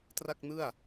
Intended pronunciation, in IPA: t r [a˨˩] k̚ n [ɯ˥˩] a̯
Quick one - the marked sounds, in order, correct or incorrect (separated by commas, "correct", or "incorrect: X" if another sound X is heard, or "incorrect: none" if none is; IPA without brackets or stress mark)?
incorrect: a˥˩, correct